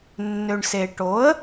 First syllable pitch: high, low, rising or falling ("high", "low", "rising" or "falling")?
low